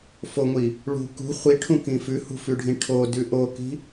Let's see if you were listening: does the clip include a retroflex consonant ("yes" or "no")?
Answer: yes